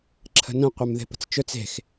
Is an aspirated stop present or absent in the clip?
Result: present